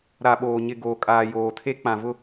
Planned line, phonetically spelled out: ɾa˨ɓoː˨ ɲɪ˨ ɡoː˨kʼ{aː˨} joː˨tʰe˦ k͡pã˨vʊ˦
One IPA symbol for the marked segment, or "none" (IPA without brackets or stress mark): aː˨